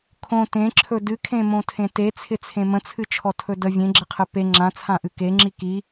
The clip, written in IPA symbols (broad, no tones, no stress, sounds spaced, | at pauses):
kʰ õ t ẽ ǁʰ ɵ d ɨ kʰ ẽ m õ tʰ ẽ t e t͡sʰ ɪ t͡sʰ ẽ m ə̃ t͡sʰ ɨ t͡ʃʰ ɔ tʰ ɵ d ə vʲ ẽ ɡ͡ǁ ə qʰ ɨ p e ŋ͡ǁ ã t͡sʰ ã ʔ ɨ k e ŋ͡ǁ i k i